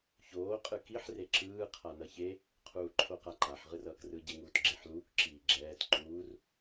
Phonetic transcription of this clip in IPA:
ç oː qʼ ɯ k i ħ r e ǁ ɯː qʰ a n ʌ ç e | qʰ uː ǃʰ o q a ǃ a ħ ʁ ɯ r ʌː k r ɯ ɟ e ŋ uː t ɡ͡ǁ e ħ l uː k ǁ iː ɡ͡ǁ ɛː t ǃ uː r

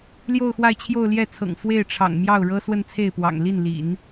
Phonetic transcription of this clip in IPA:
l j o˥˧ ʊ̯ x w a˥˧ ɪ̯ t͡ɕʰ j o˥˧ ʊ̯ l j ɛ˥˩ t͡sʰ ɤ̰˨˩ ŋ f w e˥˩ ɪ̯ ʈ͡ʂʰ ɑ̰˨˩ ŋ m j ɑ˥˩ ʊ̯ ɻ ɤ˥ s w ə˥˧ n t͡sʰ e˥˩ ɪ̯ p w ɑ̰˨˩ ŋ l i˥˩ n l ḭ˨˩˦ n

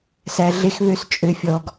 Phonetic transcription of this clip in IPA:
s æ˧ ɮ e˦ x β ø˦ s t͡ʃʼ ø˨ fʲ ɔ˨ ɡ

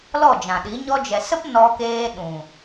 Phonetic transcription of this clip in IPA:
l ɔ˦˨ d͡ʒ ã˨ ɗ i˨˦ ɲ ɔ˧ d͡ʒ ɛ˨ s ə˦ p n ɔ˧ k eː˧ ɗ ũ˨

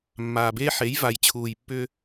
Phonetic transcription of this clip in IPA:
mː aː˨ b eː˦ ħ e˨˦ j v a˨ j t͡ɕʰ uː˨ j pː ʏ˦

